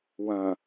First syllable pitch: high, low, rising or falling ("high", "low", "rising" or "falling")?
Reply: low